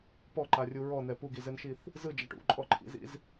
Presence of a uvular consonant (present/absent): absent